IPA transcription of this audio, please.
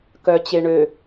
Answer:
k œ t͡ɕ e ɳ ø

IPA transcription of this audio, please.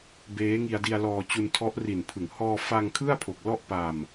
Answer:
b eː˦˥ ŋ i˧ a̯ d i˧ a̯ l ɔː˧ t͡ɕ u˧ n tʰ ɔ˦˥ ʔ r i˨˩ n pʰ ɯ˩˦ ŋ h ɔː˧ f a˧ ŋ kʰ ɯ˥˩ a̯ pʰ o˨˩ k̚ l ɔ˥˩ ʔ p a˧ m

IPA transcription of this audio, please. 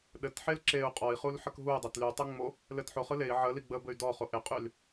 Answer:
ɗ ɘ t ħ e l ǁ e u̯ qʼ ɔ i̯ χ u l ħ ə k ɦ u y̯ dˤ ɘ t l y tˤ ɯ ŋ͡m o | l ɘ t ħ o χ ɯ l e i̯ ʕ ə l i ɡ͡b ə b ɘ y̯ d ɔ χ o ʔ ɪ qʼ y l

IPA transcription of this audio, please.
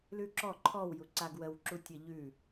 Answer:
l ʉ ǁ ɔ ǃʰ ɔ w j u ǀ a ɡ w ə w ǁ u tʲ ə ʎ ʉ

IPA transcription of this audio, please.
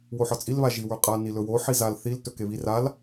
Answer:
w o ħ ɒ t͡sʼ i l β a ʒ i w ə˞ qʼ a n i l ɵ w o ħ i z a l θ i l t ɵ k e β i r a l

